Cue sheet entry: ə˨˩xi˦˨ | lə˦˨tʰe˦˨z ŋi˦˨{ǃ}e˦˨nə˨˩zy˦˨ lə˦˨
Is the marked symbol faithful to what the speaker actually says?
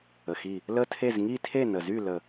no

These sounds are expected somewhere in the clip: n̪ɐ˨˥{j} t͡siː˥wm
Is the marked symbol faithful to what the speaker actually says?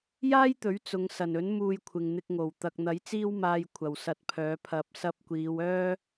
yes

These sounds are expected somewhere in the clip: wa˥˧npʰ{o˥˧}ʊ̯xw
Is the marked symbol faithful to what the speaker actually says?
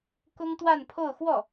yes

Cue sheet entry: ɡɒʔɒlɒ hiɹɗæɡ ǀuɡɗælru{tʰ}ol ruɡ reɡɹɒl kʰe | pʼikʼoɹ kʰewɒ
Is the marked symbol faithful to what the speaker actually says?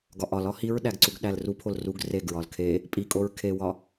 no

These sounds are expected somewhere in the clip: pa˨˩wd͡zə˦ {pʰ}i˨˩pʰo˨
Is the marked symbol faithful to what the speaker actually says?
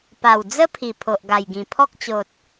yes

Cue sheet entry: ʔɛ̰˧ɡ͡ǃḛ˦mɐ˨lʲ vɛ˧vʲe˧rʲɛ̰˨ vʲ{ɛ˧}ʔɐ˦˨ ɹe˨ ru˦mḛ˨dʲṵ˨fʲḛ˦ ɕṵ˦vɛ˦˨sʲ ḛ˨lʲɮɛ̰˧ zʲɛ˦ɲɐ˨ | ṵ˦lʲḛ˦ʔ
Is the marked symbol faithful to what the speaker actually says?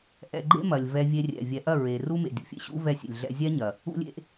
no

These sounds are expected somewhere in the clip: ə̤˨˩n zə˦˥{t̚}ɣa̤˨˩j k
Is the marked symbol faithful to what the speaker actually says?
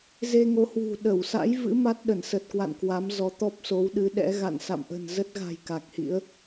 yes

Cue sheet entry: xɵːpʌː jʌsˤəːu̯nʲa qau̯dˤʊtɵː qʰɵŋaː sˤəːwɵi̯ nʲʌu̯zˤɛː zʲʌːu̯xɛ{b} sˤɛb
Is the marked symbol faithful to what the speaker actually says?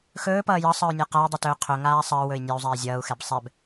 yes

